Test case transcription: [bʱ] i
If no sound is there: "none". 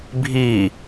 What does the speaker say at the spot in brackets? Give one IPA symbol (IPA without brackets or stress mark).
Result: bʱ